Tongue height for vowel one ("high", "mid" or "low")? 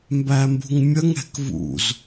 low